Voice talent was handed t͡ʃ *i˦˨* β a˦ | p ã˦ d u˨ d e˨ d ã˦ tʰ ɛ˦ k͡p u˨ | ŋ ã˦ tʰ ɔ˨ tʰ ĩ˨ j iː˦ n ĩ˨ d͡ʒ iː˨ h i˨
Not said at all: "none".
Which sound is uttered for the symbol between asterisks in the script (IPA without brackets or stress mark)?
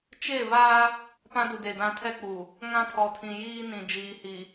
e˦˨